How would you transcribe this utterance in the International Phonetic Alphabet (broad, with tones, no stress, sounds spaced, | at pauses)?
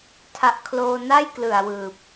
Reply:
tʰ a˨˩ ʔ kʰ l oː˧ n a˥˩ j k l ɯ˨˩ a̯ w ɯː˨˩ p̚